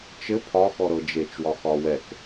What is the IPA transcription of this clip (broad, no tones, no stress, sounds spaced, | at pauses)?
t͡ʃ ɘ pʰ ɒ x ɔ ɾ ɤ d͡ʒ e t͡ʃ w ɒ x ɒ w ɛ k